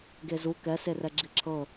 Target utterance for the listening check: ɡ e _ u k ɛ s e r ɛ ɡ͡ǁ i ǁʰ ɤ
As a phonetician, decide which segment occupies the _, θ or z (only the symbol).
z